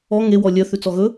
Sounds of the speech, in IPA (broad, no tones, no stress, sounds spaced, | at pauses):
ɔ ŋ e w ɔ lʲ œ θ ʉ t͡s ɔ ɣ ɵ